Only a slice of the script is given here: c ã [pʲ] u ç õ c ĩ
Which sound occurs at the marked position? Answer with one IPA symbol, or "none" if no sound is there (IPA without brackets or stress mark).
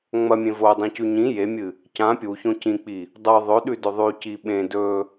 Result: pʲ